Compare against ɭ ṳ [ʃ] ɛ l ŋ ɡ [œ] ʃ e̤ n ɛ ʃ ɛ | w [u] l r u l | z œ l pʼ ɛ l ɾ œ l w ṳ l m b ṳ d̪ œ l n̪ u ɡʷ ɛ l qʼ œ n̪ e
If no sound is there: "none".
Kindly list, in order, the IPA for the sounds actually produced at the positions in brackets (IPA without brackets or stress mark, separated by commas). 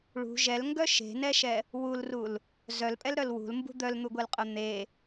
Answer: ʒ, œ, u